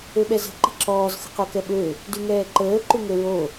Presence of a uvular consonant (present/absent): present